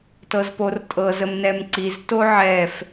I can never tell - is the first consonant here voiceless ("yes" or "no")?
yes